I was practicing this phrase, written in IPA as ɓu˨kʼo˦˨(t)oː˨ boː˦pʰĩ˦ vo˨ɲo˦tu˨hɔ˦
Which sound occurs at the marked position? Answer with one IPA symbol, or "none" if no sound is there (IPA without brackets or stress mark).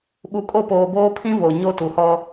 p